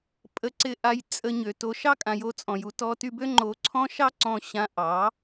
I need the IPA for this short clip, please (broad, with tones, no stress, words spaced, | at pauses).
pʼə˧ǀɪ˧ʔa˧j t͡sʼə˧ ɲø˨to˧ ʃɑ˦kʼã˨jo˧t͡sʼɔ̃˨j u˧ tɔ˧ty˧bø˦ ŋ͡ǃo˧ǀʰɔ̃˦ ʃɑ˦ǀɔ̃˧ ɕã˧ʔɑ˨˦